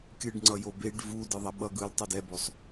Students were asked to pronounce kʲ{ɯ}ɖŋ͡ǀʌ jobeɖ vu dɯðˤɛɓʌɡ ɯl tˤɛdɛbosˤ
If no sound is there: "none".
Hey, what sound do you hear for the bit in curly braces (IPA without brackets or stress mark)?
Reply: ɯ